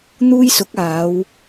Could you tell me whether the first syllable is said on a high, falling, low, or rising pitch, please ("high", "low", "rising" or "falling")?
high